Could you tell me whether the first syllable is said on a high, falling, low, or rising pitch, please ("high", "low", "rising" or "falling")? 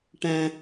high